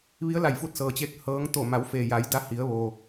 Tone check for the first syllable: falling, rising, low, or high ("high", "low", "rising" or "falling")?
rising